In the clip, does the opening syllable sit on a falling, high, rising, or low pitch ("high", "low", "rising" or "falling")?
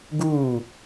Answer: falling